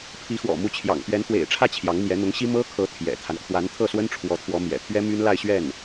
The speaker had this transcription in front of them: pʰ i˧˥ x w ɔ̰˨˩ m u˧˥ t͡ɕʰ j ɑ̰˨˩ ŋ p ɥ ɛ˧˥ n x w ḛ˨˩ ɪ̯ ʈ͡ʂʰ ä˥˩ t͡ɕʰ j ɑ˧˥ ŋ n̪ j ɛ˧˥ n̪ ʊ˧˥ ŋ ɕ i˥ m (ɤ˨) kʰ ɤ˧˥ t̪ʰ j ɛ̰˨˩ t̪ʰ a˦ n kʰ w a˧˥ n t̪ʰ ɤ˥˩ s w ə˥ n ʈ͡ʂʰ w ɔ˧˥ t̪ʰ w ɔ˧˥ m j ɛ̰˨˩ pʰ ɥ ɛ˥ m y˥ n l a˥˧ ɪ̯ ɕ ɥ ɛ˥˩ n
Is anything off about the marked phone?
yes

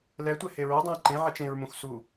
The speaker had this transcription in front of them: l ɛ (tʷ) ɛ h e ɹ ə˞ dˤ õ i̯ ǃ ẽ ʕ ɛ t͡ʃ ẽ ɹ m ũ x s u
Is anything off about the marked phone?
no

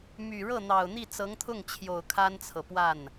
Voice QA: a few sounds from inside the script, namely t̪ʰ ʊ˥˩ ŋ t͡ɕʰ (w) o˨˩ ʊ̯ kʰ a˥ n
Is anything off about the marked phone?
yes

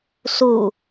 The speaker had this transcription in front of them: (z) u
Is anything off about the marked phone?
yes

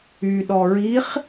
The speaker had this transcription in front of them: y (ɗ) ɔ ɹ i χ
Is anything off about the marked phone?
no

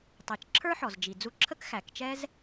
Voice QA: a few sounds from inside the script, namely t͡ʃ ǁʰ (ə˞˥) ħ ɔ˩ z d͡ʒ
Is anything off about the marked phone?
no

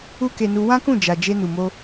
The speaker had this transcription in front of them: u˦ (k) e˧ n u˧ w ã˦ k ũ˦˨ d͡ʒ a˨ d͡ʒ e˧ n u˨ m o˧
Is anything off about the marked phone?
no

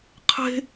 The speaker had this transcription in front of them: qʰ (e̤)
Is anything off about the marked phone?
no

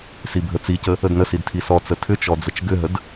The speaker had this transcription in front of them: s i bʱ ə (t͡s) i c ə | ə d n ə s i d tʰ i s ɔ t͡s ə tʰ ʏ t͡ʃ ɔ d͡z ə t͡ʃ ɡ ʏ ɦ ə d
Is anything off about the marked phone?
no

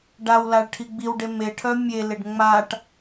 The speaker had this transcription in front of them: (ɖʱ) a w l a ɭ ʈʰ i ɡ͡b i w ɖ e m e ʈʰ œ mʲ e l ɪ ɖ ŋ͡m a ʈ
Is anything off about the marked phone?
yes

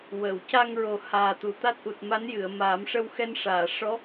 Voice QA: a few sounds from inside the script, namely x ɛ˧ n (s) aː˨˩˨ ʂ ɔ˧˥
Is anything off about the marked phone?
yes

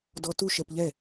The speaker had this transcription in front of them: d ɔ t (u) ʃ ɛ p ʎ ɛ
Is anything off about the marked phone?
no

